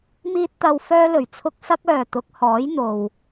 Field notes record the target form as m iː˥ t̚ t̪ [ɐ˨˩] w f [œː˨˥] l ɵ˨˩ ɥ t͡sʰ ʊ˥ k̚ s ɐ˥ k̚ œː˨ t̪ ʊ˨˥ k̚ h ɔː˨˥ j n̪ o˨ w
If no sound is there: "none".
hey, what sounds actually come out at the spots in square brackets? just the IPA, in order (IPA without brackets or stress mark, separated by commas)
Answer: ɐ˧, œː˥